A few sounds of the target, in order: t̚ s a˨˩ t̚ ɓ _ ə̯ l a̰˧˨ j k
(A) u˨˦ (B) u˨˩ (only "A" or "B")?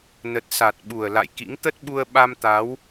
B